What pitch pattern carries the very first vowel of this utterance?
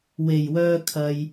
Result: low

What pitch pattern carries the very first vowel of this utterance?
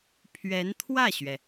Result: rising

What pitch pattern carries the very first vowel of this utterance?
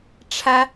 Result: high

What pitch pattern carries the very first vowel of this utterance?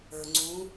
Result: low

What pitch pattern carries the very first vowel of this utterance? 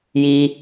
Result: high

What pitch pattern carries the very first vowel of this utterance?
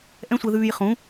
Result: high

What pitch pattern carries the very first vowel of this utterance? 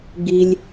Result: high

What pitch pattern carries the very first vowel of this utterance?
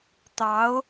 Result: rising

